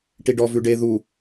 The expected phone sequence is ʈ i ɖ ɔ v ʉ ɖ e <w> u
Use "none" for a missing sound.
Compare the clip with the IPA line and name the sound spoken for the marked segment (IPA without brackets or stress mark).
ð